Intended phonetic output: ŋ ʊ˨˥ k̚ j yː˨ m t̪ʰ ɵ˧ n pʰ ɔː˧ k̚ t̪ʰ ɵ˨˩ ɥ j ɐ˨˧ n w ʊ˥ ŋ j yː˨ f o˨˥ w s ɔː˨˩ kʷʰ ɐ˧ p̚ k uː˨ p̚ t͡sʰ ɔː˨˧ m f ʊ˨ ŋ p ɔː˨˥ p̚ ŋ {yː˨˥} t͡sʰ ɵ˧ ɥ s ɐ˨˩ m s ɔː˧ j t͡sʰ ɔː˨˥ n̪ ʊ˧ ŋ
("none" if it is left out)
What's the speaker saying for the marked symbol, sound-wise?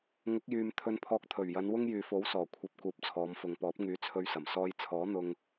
yː˨˥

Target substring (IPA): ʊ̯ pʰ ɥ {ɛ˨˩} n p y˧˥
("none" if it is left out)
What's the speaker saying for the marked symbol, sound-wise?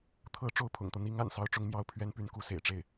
ɛ˥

